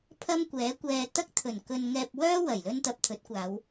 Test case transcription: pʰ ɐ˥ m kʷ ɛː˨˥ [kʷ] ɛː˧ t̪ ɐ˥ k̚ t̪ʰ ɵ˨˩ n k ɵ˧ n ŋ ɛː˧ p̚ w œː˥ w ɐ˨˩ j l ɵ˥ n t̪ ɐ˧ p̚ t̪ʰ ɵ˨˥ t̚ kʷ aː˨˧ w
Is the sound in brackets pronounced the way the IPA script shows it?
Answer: yes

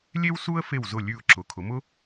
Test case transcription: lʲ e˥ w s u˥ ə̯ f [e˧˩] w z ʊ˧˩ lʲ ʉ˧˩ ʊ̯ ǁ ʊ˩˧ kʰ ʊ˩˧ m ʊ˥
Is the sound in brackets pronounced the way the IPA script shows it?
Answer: yes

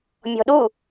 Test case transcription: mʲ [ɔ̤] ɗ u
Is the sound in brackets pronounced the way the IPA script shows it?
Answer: yes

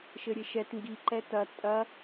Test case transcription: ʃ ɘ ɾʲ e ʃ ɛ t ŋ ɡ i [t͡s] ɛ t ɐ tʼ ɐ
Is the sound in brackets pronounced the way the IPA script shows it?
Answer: no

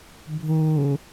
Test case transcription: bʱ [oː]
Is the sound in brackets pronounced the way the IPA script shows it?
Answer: yes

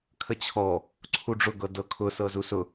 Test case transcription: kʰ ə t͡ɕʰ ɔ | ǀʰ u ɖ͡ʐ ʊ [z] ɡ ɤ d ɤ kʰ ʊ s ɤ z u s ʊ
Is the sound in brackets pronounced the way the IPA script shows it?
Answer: no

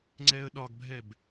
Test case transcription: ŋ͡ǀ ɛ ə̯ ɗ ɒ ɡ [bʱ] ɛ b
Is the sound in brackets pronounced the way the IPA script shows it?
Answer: yes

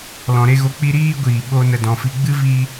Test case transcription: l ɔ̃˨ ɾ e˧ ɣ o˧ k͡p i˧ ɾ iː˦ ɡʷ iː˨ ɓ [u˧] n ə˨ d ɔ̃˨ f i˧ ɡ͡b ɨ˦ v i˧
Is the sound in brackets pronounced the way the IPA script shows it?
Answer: no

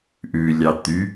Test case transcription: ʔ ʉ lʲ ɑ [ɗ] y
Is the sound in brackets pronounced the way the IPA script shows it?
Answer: no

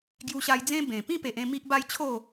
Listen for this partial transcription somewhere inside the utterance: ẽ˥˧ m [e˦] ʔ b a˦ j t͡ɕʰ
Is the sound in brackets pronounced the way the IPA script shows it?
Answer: no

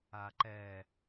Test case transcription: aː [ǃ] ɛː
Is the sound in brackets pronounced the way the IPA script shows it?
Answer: yes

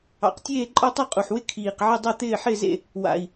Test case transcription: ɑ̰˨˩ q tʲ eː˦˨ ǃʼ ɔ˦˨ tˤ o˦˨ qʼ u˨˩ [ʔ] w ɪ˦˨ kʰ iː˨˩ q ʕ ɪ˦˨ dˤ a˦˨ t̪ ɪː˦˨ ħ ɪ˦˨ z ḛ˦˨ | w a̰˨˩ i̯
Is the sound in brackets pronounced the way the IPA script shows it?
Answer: no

